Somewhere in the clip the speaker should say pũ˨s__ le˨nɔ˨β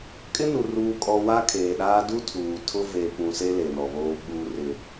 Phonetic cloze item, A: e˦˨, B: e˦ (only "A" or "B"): B